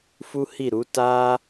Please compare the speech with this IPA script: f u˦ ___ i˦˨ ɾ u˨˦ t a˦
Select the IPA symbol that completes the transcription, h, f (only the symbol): h